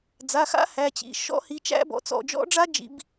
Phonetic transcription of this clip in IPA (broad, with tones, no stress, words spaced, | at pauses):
d͡za˩˧˩xa̰˦˥ hæ˩˧˩t͡ɕḭ˩˧˩ ʃɔ̰˦˥hi˩˧˩t͡ʃæ̰˦˥bɔ̰˩˧˩ t͡sɔ̰˩˧˩d͡ʒɔ̰˦˥ɖ͡ʐa˦˥d͡ʒḭ˩˧˩b